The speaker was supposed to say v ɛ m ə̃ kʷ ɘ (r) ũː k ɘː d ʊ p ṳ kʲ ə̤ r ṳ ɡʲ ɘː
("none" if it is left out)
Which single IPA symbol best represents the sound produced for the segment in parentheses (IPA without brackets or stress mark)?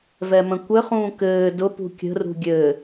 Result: χ